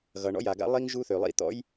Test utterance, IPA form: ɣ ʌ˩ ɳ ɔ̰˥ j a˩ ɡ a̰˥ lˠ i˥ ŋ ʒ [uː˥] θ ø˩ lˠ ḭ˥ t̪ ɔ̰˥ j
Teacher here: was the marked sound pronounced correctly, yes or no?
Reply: no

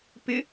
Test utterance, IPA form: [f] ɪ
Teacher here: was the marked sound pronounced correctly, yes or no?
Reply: no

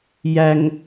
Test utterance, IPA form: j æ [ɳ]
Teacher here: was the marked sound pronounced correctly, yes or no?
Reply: no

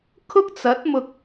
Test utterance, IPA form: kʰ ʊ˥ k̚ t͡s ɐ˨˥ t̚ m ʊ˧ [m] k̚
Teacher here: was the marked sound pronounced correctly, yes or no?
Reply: no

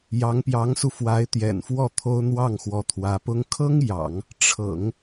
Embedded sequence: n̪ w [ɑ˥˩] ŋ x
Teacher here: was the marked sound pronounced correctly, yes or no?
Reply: yes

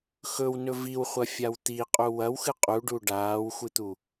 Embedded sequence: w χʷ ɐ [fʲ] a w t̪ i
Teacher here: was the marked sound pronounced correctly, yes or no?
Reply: yes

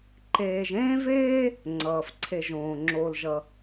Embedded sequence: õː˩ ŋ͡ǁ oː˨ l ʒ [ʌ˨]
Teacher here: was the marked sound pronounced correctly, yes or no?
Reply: yes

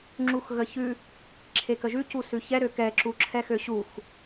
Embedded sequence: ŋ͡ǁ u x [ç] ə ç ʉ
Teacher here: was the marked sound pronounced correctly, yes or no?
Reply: no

